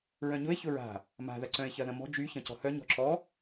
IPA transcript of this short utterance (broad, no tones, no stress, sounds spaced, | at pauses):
ɹ œ̃ ɲ ʊ e̯ ç ʊ ɹ a̤ | m a̤ ð ɐ ǀ œ̃ e̯ ç ɐ ð ɐ̃ m ɔ̤ d͡ʒ y ç ɐ̃ c ɔ̤ h œ ɲ ɔ̤ ǁ ɔ